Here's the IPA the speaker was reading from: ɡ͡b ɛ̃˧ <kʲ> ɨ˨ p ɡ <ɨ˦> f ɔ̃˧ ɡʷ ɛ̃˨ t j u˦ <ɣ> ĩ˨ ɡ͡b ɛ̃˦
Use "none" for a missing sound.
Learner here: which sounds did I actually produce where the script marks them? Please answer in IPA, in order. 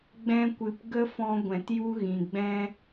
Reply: kʷ, ə˦, ɣ

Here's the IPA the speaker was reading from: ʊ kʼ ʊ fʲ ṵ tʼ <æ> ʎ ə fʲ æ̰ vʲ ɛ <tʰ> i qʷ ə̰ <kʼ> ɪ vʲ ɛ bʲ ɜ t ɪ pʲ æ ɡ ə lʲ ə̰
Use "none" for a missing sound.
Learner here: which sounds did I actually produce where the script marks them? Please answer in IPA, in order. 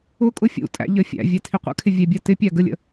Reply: æ̰, tʰ, kʰ

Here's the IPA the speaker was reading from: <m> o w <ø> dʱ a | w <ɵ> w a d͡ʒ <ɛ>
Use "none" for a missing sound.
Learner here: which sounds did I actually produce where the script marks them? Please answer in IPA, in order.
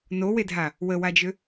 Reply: n, e, ə, ø

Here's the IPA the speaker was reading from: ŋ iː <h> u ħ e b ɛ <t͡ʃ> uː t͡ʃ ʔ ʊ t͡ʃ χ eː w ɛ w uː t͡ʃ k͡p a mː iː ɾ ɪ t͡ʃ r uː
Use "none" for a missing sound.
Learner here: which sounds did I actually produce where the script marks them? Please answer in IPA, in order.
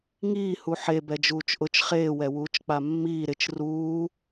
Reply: h, d͡ʒ

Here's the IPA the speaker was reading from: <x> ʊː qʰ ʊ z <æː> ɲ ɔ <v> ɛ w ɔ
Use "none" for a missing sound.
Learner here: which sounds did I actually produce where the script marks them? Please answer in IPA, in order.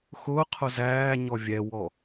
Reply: x, æː, vʲ

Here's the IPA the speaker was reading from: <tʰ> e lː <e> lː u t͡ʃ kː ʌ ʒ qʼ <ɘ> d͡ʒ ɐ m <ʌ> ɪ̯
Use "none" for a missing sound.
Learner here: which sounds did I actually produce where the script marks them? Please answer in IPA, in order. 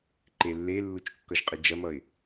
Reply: ǃ, e, ɘ, ʌ

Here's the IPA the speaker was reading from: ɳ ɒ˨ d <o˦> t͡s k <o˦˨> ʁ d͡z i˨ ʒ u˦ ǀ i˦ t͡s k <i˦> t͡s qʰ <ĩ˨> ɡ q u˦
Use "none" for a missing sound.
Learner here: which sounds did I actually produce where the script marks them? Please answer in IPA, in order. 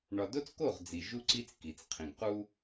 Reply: o˦, o˦˨, i˨, ĩ˨

